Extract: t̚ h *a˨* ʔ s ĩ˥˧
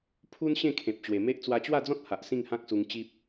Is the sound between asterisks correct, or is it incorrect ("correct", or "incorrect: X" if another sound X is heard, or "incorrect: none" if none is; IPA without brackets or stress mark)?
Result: correct